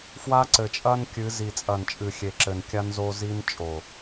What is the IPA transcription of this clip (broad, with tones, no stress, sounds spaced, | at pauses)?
f w a˦ ǀ ɘ˨ t͡ʃʼ ɐ˦ n kʲ ɨ˨˦ z i˨ t͡sʼ ɐ˨ n t͡ʃʼ ɨ˨ xʲ e˨ ǁ ɘ˨ n kʲ a˦ n z o˦ z i˦ n t͡ʃʼ o˨